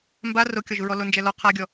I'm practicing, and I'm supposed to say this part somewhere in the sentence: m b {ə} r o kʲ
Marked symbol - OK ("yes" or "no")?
no